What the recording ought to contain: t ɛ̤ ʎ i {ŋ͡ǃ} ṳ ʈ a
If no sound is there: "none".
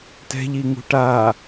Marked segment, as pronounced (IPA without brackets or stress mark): ŋ